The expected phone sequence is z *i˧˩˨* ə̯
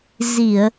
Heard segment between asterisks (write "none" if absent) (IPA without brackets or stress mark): i˧˩˨